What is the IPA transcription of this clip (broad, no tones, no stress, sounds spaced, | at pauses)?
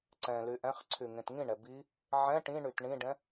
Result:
ǀ ɛ̃ l y ʔ ɛ̃ χ ǀʰ y ŋ ẽ t ŋ ĩ ɳ ɛ b i | ʕ ɛ̃ ʈ ĩ ɳ y t ɳ ĩ ɖ ɛ̃